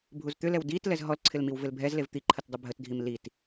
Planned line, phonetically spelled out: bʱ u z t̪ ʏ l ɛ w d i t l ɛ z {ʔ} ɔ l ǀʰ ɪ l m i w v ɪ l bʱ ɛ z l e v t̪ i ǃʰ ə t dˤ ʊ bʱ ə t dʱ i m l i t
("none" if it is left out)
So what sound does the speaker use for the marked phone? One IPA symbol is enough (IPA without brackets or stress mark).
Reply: ɦ